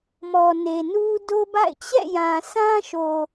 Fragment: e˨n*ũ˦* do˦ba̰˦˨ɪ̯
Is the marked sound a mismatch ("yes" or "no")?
yes